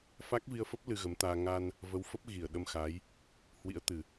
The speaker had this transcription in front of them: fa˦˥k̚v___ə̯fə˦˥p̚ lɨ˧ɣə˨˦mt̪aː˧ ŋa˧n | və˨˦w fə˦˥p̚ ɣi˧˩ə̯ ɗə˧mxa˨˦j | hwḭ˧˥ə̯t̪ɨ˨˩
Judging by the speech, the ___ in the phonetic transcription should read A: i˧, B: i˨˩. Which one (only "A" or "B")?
A